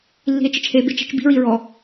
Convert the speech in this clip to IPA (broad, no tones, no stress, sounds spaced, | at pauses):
lː i̤ e̯ t͡ʃ i t͡ʃ h e b ɪ t͡ʃ e̤ t͡ʃ b i̤ ɹ i ɹ ɔ